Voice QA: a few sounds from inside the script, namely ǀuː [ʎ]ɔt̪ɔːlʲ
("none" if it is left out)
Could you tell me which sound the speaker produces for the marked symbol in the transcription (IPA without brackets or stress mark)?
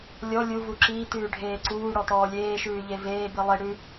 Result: ɽ